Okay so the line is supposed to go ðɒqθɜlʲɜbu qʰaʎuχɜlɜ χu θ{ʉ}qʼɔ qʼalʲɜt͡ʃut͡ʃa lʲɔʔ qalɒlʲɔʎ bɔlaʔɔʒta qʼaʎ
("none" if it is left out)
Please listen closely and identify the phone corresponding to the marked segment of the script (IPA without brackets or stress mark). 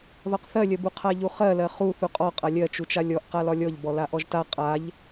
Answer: u